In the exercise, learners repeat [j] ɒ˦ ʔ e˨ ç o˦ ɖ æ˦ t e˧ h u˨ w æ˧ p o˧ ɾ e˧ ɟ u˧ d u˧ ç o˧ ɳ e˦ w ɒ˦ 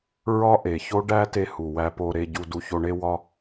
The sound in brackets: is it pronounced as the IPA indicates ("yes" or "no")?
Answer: no